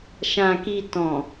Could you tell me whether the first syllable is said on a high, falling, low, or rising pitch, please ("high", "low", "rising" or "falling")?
low